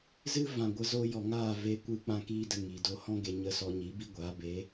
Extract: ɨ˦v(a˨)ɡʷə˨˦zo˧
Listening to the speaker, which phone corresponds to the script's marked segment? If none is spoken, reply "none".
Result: ã˨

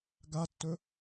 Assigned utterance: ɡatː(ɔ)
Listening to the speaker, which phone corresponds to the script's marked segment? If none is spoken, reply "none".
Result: ɵ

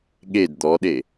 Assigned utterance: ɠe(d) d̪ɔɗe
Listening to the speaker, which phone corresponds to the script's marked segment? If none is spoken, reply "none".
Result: d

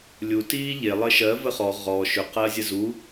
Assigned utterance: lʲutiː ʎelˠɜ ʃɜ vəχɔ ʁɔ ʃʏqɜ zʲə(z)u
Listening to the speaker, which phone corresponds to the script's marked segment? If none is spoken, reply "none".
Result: z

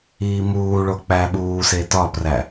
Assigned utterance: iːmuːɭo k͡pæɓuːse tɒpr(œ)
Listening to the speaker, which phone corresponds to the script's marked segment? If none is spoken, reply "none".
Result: æ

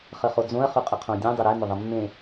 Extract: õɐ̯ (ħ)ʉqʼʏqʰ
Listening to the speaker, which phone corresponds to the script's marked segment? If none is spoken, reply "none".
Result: χ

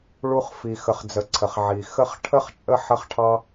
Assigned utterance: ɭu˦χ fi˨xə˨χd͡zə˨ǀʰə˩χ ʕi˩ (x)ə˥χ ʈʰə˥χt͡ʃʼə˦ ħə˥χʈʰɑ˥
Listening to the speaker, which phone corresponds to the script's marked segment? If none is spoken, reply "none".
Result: x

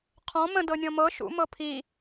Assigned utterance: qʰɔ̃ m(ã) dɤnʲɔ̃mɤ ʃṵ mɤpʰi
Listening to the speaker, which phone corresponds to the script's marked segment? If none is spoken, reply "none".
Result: ə̃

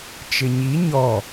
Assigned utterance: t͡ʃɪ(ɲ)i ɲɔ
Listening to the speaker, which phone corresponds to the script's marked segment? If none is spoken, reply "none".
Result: ɲ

